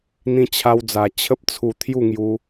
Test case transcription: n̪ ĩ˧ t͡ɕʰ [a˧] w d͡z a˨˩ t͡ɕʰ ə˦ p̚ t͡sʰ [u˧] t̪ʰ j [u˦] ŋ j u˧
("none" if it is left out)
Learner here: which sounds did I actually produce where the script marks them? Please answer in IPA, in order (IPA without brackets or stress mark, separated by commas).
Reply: a˧, u˧, u˥˧